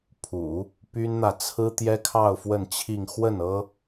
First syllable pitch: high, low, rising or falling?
low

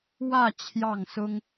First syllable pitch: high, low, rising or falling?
falling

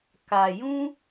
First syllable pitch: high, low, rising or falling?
low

